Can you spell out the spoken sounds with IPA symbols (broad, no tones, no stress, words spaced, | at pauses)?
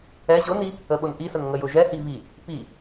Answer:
ɛ ʑʊni | əɓʊnʔisən ŋəjʊʒɛhi βi | pi